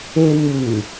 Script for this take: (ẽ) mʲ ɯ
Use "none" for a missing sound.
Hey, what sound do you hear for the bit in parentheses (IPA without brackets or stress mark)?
e